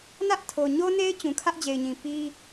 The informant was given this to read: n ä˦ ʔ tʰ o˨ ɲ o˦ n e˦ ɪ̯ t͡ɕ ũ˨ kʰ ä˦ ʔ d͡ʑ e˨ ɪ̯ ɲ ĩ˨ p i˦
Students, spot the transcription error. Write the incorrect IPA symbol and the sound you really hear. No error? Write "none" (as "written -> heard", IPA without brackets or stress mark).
none